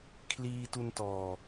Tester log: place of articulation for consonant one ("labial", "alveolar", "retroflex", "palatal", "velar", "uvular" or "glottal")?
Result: velar